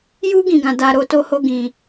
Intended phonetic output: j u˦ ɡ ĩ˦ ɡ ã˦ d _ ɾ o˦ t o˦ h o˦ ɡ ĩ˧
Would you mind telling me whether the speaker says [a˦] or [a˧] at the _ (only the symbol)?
a˦